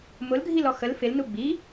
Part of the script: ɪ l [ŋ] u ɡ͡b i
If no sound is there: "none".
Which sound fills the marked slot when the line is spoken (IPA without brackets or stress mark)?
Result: n